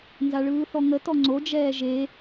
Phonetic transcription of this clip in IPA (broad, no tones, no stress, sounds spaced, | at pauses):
n z a ɭ ɯː θ ɔ ŋ ə t ɔ ŋ͡ǀ o d͡ʒ ɛː ʒ e